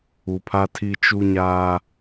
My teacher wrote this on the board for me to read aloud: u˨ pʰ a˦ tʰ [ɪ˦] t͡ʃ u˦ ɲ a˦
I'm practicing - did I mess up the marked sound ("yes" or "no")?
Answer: yes